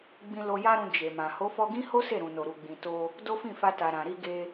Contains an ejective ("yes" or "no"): no